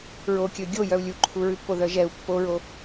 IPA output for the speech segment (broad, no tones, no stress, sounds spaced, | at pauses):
ɹ o kʲ ɵ ɡʲ o j œ u̯ lʲ u ǃʰ u ɹ ʉ pː o ð œ ʒ ɛ u̯ pː o ɹ o